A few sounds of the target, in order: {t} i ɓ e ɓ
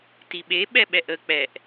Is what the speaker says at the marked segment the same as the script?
yes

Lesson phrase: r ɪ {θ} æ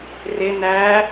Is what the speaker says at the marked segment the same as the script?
no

